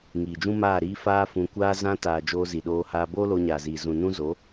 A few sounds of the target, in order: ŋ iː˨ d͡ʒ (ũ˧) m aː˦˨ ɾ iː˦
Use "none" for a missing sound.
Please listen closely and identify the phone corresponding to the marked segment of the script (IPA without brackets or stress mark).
ũ˦